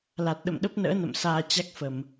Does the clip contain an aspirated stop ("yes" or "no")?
no